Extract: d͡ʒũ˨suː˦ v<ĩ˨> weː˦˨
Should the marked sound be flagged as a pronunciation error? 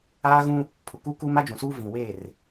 no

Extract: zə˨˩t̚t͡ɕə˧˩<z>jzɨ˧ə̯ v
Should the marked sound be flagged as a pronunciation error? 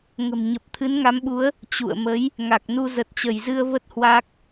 yes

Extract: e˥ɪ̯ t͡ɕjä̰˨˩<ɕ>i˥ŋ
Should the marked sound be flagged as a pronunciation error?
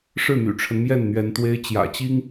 yes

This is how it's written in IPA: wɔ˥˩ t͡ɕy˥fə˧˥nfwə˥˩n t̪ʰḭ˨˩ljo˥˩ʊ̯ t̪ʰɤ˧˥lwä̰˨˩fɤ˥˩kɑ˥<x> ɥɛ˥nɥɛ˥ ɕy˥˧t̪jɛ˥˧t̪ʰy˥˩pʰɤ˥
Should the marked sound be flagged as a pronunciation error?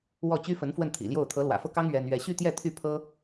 yes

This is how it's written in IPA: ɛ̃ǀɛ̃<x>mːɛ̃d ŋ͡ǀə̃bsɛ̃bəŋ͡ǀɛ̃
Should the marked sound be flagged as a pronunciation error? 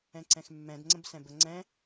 no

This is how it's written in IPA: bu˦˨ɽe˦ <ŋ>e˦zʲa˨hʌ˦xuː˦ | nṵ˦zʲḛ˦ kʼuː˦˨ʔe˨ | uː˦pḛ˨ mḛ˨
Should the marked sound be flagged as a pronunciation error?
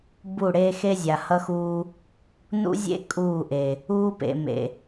yes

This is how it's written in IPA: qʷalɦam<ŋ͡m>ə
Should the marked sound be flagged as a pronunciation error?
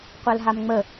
no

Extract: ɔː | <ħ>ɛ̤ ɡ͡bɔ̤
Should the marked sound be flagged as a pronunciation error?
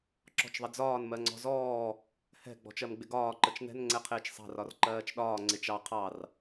yes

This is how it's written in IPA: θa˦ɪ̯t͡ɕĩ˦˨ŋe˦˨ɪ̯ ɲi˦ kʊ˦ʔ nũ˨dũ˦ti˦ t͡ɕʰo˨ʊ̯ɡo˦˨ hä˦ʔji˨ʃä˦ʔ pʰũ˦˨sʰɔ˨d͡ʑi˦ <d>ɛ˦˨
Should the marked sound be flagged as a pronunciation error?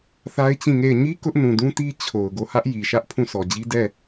no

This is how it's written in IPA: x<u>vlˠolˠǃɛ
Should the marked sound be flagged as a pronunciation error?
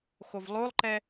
yes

